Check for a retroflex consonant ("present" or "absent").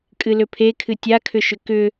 absent